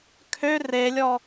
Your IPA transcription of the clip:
kʰ ø r e lʲ ɔ

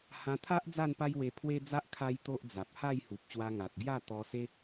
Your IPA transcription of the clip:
h ã˧ t̪ʰ a˦ ʔ d͡z a˥˧ n p a˦ j w e˧ pʰ w e˦ d͡z a˦ ʔ kʰ a˦ j t̪ o˦ ʔ d͡z a˨ p̚ h a˥˧ j h u˨ p̚ ɕ w a˧ ŋ a˨ t̚ ɡ j a˥˧ t̪ ɔ˧ s e˦

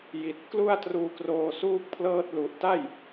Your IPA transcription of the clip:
j i˨˩ t̚ k l u˥˩ a̯ t r uː˦˥ k r oː˧ s uː˥˩ k̚ pʰ l ɤː˥˩ t̚ l u˨˩ ʔ t a˥˩ j

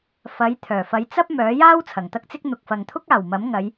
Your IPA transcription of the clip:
f ɐ˨˥ j t̪ʰ œː˨˩ f ɐ˨˥ j t͡s ɐ˥ p̚ m œː˨˥ j aː˥ w t͡sʰ ɐ˨˩ ŋ t̪ ɐ˥ k̚ t͡s ɪ˥ k̚ n̪ ʊ˨ k̚ f ɐ˨ ŋ t̪ʰ ʊ˥ k̚ aː˨˩ w m ɐ˨˥ m ŋ ɐ˨˧ j

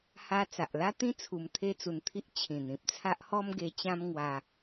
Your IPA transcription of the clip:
h a˧ t͡s a˨ ʔ l a˦ t̪ ĩ˦ t͡sʰ u˧ m t̪ʰ e˦ t͡s u˧ n t̪ʰ i˦ ʔ t͡ɕʰ ĩ˨˩ n̪ ĩ˨ p̚ t͡sʰ a˦ ʔ h ɔ˦ m ɡ e˧ t͡ɕ ã˦ m ŋ w a˧

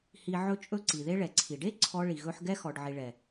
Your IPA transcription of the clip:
h i˧ ʕ ɵ˦ t͡ʃʼ ɵ˦ ǀ i˨ ð e˦ ɭ ɛ˨ ǀʰ i˨ ɖ e˦ ǀʰ ɔ˦ ɭ i˨ ɣ ɵ˦ ħ ɡ ɛ˦ x ɔ˨ ɖ ʕ i˨ ɭ ɛ˨

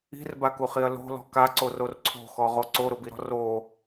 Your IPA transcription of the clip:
i̤ r b a k u χ i ɐ̯ l o̤ l ɔ̤ k a ǀ o r o r ǀʰ o̤ x ɔ ʁ o ǀ o ɾ ʊ b i ɾ ɔ̤ r o

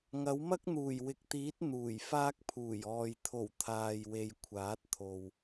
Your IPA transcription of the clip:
ŋ ɐ˨˥ w m ɐ˥ k̚ n̪ uː˨˩ j w ɪ˨ k̚ t̪ iː˨˥ t̚ n̪ uː˨˩ j f aː˧ k̚ pʰ uː˨˩ j ɔː˨ j t̪ʰ o˨˩ w t̪ʰ aː˨ j w e˨ j kʷʰ aː˨˥ t̚ t̪ʰ o˨ w

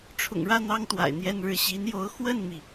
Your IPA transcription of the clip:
ʈ͡ʂʰ ʊ̰˨˩ ŋ ɻ ä˥˩ n̪ ɑ˥ ŋ t̪ w a̰˨˩ ɪ̯ n̪ j ɛ˥˧ n ɻ ɻ̩˥˩ ɕ i˧˥ n j o˧˥ ʊ̯ x w ə˥˩ n m i˩

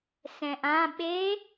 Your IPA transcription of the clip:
s ɛ̃ ʔ ã ɓ e

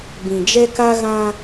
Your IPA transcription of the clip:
b ĩ˨ d͡ʒ ɛ˦ k a˦ ɣ ã˦

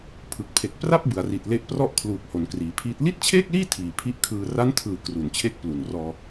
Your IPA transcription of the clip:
pʰ ɯ˨˩ k̚ pʰ e˨˩ k̚ p r a˥˩ p̚ b ɯ˩˦ a̯ r i˨˩ t̚ l e˦˥ ʔ p r ɔ˥˩ ʔ kʰ l uː˨˩ k̚ h o˩˦ n k r iː˩˦ pʰ iː˦˥ t̚ l i˥˩ t̚ t͡ɕʰ eː˥˩ k̚ l iː˥˩ tʰ iː˨˩ pʰ i˦˥ ʔ kʰ ɯː˧ r a˦˥ n tʰ ɯː˨˩ k r u˩˦ n t͡ɕʰ e˦˥ k̚ p l u˨˩ n r ɔː˧

